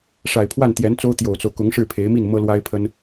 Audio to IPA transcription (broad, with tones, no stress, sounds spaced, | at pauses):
ʂ a˨˩ ɪ̯ pʰ w a˥˩ n t̪ j ɛ˧˥ n t͡s o˥ ʊ̯ t̪ j o˨˩ ʊ̯ t͡s o˦ ʊ̯ k ʊ˧˥ ŋ ʂ ɻ̩˥˩ pʰ e˧˥ ɪ̯ m i˥˩ n m ɤ˥ l w a˥ ɪ̯ pʰ ə˥ n